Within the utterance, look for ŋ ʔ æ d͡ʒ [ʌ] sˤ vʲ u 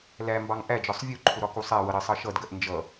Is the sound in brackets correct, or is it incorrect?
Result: incorrect